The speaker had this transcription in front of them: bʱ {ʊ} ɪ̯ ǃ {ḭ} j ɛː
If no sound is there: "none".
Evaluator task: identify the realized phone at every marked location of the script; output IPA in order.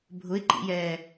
ʊ, ḭ

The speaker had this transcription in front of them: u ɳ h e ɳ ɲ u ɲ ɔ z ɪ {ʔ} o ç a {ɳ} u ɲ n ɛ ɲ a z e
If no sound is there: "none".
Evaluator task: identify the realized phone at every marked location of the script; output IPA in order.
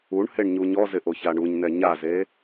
ʔ, ɳ

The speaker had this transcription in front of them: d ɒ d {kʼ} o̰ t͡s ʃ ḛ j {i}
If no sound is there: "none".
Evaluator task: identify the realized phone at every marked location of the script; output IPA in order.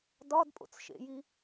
pʼ, i

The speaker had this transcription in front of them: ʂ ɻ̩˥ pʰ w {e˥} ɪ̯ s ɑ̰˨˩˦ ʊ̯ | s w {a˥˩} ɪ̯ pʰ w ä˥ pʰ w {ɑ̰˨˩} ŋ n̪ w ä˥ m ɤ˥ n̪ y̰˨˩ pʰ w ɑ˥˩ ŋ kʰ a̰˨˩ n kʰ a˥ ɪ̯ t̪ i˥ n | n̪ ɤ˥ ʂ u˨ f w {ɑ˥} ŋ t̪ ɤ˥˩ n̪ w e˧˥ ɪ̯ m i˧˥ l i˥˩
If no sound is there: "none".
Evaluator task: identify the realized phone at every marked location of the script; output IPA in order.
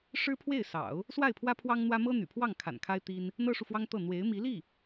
e˥˩, a˥˩, ɑ˥, ɑ˥

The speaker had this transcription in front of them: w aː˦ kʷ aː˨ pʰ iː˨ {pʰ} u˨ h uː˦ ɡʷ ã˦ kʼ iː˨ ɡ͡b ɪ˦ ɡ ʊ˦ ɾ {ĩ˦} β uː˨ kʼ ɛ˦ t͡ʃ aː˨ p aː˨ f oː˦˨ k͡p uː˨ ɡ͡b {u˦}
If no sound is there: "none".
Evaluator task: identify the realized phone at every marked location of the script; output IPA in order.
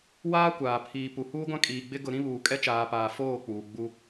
p, ĩ˦, u˦

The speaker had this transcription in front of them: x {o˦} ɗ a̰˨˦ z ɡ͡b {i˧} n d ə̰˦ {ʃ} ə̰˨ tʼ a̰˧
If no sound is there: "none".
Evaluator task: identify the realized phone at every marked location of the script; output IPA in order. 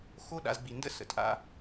o˦, i˧, s

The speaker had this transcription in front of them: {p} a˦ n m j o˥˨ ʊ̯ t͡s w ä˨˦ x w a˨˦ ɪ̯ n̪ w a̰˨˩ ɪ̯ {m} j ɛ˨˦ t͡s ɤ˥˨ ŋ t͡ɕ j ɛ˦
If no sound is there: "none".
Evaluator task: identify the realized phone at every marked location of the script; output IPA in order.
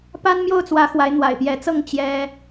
p, p

